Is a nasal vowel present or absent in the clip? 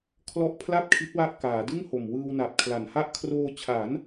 absent